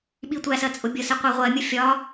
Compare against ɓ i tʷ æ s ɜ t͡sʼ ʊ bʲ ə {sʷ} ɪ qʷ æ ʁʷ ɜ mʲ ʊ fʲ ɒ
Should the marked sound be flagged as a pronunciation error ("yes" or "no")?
yes